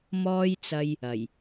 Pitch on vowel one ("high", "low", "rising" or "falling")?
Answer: high